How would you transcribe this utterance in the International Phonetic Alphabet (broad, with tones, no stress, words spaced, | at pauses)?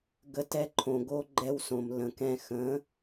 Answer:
ɡə˧ tɛ˧ǃʰõ˨ɡo˧ ɡ͡ǃɛ˧w sõ˨mlə̃˨kɛ̃˧ xə̃˨˦